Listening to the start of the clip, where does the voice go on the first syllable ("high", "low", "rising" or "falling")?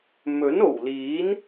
rising